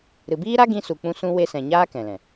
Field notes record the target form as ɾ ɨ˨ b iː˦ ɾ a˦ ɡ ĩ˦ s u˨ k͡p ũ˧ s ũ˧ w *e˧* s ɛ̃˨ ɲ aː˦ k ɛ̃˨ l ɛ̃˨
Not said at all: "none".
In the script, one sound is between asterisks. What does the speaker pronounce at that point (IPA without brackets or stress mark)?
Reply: e˧